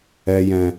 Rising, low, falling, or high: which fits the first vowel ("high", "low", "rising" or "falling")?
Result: low